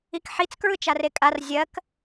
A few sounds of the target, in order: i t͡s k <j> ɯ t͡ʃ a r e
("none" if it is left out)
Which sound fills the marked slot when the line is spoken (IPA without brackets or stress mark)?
ɹ